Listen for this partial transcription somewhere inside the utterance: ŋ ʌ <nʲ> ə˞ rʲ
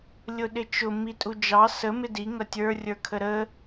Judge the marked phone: incorrect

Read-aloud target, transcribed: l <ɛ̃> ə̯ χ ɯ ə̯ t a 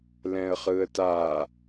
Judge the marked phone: correct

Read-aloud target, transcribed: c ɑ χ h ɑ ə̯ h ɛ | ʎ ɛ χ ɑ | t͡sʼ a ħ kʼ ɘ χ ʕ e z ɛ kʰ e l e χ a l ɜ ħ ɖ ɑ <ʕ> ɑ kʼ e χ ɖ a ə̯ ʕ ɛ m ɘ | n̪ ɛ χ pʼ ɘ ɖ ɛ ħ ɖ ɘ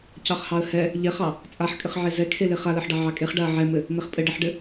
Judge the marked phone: correct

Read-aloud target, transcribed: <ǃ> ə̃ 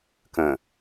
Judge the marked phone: incorrect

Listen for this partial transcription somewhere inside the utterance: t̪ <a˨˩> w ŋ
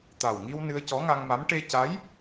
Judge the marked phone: correct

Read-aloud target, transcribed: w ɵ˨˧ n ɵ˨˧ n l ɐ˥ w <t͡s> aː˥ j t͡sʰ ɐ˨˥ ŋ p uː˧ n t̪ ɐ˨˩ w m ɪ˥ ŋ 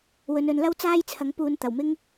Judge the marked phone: correct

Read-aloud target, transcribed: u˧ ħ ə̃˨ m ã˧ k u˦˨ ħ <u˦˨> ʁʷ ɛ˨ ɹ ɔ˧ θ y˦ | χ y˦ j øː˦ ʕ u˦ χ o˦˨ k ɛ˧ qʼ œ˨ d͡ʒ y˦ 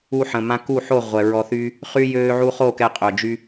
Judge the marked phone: incorrect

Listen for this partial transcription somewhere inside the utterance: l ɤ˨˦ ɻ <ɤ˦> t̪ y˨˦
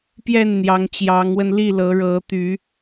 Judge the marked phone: incorrect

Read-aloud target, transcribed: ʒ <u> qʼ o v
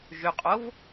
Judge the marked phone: incorrect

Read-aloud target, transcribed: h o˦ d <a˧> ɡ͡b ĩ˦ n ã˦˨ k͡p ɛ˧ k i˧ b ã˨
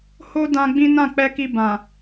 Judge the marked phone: incorrect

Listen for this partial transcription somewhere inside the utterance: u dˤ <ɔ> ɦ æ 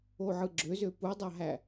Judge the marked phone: incorrect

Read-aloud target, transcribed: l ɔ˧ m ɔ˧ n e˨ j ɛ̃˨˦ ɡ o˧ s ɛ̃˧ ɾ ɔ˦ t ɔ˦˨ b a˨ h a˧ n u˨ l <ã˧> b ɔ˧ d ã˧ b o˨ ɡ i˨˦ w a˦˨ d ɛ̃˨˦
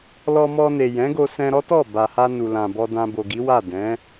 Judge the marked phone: incorrect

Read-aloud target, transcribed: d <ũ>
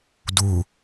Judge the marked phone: incorrect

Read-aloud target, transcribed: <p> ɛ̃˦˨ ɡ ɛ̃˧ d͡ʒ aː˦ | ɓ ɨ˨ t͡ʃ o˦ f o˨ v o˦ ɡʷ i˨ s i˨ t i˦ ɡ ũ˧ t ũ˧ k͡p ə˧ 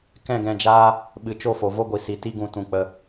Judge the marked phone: incorrect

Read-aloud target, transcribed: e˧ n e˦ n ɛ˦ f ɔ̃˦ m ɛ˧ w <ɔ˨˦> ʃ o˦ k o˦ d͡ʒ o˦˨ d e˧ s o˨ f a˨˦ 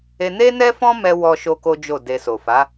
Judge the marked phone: incorrect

